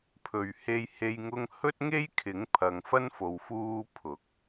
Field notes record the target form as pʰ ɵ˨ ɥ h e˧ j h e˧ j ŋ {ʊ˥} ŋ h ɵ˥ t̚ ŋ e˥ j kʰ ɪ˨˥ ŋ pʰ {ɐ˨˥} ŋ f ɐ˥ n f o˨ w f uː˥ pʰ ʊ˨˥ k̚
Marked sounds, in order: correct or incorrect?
correct, incorrect

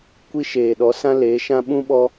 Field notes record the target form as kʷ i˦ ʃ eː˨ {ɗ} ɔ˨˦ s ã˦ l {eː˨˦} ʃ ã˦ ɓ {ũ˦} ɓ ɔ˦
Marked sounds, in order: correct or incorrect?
correct, correct, correct

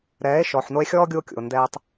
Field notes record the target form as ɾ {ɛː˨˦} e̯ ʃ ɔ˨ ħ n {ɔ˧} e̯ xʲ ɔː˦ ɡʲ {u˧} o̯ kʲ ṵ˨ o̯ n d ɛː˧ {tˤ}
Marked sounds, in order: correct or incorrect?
correct, incorrect, correct, correct

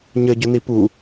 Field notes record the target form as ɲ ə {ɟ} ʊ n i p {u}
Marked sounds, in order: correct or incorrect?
correct, correct

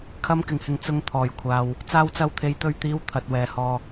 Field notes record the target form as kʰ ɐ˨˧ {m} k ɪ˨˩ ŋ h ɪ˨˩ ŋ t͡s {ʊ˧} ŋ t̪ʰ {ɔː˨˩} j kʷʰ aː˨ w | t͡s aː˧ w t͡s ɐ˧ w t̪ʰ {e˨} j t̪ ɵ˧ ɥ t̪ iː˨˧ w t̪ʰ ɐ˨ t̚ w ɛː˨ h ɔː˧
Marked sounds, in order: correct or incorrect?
correct, correct, correct, correct

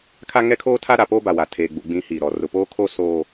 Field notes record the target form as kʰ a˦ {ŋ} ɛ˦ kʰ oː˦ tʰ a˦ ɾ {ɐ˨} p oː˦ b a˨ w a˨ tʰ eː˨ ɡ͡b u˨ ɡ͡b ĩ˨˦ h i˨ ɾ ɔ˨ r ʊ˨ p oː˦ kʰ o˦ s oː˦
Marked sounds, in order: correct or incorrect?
correct, incorrect

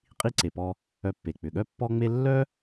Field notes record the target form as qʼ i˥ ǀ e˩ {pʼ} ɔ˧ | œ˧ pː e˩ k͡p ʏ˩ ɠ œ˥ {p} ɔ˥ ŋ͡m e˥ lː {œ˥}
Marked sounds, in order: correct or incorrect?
incorrect, incorrect, correct

